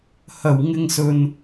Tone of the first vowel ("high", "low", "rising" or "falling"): low